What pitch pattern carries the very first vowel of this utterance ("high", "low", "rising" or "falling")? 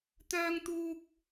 high